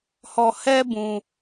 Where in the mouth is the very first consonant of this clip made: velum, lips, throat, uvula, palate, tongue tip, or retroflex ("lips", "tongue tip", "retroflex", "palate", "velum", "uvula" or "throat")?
throat